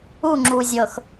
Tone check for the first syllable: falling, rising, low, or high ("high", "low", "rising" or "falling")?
falling